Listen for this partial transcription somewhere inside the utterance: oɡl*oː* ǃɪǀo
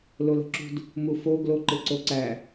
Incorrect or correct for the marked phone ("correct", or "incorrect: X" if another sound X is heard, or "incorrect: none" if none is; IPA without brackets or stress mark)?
incorrect: o